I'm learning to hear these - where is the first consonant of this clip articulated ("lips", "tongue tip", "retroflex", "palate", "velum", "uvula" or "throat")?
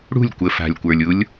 retroflex